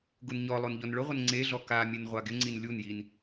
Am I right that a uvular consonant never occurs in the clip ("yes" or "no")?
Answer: no